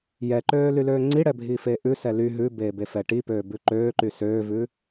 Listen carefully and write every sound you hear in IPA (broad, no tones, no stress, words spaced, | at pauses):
jɛǃøːlyløː ŋ͡ǀiɽɛbʱiːfeː ʔʉsɛ ly ɦʉbeːbefɛ ʈipøːbʉ ǃøːǃy søːvʉ